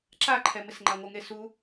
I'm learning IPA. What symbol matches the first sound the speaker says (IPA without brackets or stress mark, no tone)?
ǁ